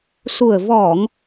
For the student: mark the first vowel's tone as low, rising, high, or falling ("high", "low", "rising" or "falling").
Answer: low